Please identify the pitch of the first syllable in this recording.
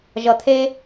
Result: low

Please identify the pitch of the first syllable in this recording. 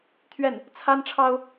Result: falling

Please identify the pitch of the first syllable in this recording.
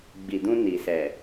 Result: low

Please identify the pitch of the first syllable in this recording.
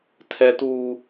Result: high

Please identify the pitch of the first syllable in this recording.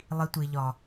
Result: high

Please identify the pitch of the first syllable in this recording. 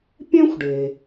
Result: high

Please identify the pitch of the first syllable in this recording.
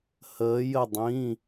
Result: rising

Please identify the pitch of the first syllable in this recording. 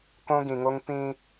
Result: high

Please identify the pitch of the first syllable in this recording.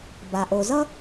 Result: low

